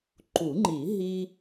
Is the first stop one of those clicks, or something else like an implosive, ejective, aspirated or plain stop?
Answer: click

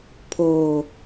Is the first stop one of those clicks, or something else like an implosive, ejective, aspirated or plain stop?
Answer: aspirated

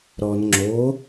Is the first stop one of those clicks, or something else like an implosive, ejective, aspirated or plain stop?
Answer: click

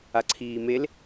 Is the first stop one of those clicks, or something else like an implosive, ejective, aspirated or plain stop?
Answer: click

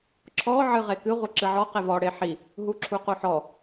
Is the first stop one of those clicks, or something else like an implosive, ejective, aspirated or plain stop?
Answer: click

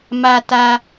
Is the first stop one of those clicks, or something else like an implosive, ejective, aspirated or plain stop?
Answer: plain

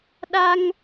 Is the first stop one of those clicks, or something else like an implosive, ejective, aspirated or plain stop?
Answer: implosive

